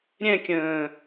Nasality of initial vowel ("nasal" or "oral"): nasal